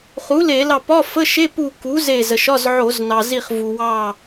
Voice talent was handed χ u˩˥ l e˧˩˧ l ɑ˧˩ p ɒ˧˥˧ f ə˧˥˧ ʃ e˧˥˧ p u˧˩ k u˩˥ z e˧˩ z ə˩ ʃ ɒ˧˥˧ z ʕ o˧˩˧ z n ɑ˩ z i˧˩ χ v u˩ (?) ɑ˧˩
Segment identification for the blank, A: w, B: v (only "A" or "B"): A